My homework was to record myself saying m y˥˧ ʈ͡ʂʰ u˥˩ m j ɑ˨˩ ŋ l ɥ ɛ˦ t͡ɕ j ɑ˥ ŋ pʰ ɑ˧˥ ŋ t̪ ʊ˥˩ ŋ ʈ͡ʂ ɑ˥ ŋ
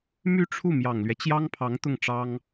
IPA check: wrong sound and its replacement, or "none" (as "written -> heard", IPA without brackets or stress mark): none